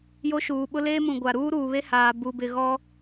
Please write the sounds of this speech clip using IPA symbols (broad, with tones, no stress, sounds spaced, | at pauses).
j o˦ ʃ uː˨ ɓ ʊ˦ l eː˦ m ũ˨ ɡʷ a˨ ɾ uː˦ ɾ uː˨ β e˦ h aː˨ b u˨ b ɪ˨ ɣ ɔ˦